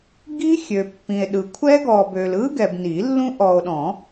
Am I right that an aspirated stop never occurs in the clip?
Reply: no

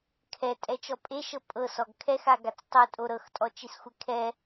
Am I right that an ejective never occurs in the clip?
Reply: no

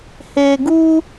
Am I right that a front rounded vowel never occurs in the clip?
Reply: yes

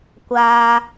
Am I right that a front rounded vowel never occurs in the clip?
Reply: yes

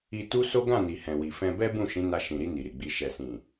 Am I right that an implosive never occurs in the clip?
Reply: yes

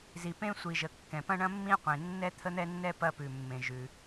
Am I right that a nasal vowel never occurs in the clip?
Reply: no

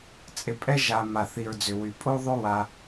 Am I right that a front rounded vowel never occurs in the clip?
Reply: no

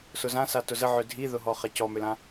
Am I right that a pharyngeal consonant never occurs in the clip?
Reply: no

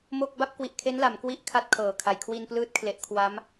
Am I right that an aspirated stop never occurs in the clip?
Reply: no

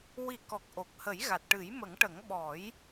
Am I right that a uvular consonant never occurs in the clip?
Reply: yes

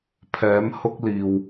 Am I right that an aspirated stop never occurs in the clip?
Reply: no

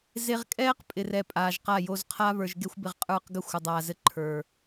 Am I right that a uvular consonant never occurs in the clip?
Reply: no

